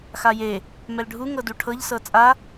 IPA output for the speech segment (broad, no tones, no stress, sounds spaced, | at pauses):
x a j e | m ɛ l ɖʱ u ŋ ɤ d u ʈʰ ɤ ʎ s ɤ t͡sʼ a